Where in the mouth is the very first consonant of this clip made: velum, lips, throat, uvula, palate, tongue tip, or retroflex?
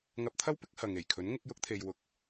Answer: velum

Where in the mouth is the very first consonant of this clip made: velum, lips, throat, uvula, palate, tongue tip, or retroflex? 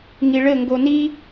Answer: velum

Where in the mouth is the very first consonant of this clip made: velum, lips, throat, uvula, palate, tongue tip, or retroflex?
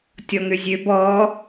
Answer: tongue tip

